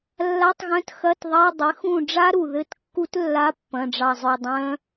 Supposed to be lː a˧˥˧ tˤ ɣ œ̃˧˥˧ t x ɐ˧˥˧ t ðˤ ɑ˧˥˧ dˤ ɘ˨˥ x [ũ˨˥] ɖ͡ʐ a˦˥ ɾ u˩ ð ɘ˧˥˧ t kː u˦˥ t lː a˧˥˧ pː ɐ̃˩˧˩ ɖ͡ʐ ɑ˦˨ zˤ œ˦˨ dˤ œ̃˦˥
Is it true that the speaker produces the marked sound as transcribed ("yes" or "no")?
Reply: no